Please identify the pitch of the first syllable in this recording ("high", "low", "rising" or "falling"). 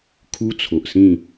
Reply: high